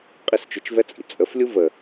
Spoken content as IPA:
qʼ i s t͡ʃ ʏ t͡ʃ v ɛ t͡sʼ ḭ t͡sʼ ə f lʲ u v ə

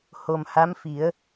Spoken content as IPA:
h o˨˩ m h a˧˥ m f i˨˩˦ ə̯

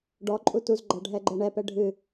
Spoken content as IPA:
ɖ ɔ ǃʼ u t u z ɡ͡ǃ a ɖʱ ɛ ɡ͡ǃ ɛ ɳ ɛ p ɛ ɖʱ ɨ

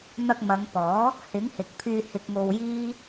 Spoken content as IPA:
n̪ ɐ˧ k̚ m ɐ˨˧ ŋ p ɔː˨˥ | h ɪ˨˥ ŋ h ɪ˨ k̚ pʰ yː˧ h ɪ˨ k̚ ŋ o˨ w j iː˥

